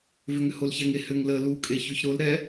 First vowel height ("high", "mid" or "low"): high